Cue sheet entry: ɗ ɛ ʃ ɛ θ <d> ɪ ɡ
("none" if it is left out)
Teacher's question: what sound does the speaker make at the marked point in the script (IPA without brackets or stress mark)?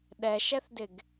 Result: d